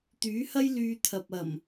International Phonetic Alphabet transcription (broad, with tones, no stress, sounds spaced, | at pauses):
t̪ yː˨˥ h ɐ˥ j l yː˧ t̪ʰ ɐ˨ p̚ ɐ˨˩ m